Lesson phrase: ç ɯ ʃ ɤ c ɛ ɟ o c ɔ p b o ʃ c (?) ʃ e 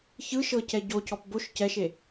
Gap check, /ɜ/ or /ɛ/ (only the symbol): ɛ